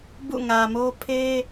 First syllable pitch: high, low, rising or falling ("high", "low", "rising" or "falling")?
falling